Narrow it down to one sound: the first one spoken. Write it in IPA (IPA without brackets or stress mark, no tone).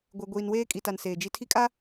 ɡʷ